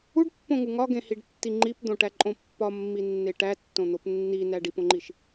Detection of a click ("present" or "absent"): present